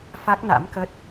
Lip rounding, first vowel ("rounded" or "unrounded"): unrounded